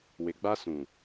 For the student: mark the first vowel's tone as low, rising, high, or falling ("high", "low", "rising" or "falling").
low